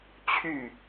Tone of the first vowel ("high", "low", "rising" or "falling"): falling